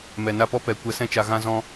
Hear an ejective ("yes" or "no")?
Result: no